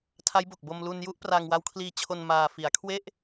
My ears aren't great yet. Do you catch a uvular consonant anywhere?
no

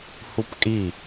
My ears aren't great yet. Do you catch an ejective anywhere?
yes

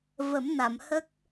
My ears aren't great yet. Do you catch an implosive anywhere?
no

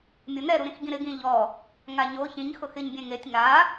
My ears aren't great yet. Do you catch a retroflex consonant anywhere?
no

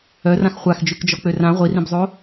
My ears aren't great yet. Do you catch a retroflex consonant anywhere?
no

